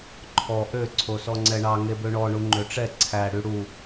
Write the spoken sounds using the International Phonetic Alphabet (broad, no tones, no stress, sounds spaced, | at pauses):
ǃʰ ɔ ʔ ø ǀʰ o s ɔ ŋ͡ǀ ɛ ɳ ɑ ŋ e b ø ɳ ɔ ɳ u ŋ͡ǃ ø ʈ͡ʂ ɛ ǀʰ æ ɽ y ɽ u